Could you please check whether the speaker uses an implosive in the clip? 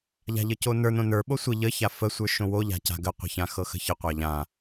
yes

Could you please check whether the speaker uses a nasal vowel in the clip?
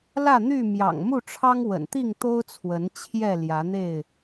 no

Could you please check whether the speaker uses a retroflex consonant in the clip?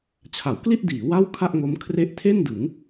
no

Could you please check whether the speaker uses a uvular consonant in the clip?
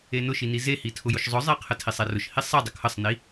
yes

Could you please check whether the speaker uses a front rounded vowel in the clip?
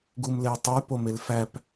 yes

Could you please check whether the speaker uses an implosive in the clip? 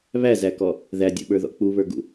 yes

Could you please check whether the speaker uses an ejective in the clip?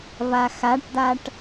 no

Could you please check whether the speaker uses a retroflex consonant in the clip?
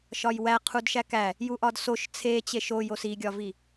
no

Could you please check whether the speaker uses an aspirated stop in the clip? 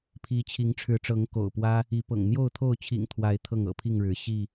yes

